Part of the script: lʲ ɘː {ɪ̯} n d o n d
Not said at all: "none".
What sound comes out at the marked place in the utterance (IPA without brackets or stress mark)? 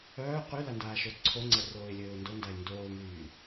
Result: ʊ̯